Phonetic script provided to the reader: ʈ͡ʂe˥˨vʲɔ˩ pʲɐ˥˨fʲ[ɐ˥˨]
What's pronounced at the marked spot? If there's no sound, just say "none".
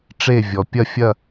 ɐ˥˨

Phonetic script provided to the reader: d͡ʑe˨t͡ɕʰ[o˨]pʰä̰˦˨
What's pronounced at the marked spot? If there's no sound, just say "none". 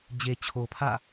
o˨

